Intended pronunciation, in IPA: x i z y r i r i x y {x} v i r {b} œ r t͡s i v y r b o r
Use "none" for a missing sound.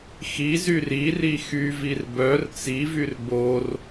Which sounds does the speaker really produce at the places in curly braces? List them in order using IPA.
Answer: none, b

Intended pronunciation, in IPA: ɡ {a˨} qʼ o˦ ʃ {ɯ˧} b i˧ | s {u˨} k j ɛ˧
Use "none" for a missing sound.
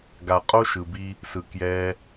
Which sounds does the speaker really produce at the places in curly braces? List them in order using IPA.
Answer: a˨, ɯ˨, ɯ˨

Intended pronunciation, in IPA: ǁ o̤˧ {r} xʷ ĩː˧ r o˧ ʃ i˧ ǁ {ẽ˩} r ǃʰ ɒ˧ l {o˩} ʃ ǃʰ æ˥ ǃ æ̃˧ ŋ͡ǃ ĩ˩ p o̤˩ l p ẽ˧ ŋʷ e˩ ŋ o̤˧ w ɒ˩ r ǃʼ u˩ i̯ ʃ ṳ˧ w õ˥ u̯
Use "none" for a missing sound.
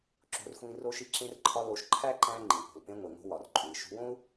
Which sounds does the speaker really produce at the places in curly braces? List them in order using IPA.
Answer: r, ẽ˧, o˧

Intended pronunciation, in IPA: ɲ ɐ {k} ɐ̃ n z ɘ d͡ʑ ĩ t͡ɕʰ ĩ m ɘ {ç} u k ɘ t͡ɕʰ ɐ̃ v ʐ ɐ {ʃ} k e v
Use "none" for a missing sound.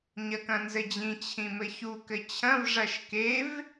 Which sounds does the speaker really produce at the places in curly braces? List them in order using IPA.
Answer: k, ç, ʃ

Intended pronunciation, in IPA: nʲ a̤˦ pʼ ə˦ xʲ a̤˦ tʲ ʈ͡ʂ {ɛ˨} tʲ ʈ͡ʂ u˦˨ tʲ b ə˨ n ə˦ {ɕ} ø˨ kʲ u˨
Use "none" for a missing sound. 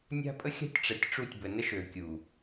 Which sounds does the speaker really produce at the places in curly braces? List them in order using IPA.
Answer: ɛ˨, ʃ

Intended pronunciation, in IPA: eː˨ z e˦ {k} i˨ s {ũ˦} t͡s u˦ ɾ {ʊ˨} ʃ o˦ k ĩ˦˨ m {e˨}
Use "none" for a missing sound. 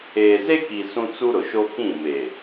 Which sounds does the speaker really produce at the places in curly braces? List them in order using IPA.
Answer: k, ũ˦, ʊ˨, e˨

